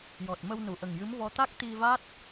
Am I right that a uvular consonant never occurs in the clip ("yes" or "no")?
yes